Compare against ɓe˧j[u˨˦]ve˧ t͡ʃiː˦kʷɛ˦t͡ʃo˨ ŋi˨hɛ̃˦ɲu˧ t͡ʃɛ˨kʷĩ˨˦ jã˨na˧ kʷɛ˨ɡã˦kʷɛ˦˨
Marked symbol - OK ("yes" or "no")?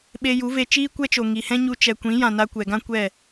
yes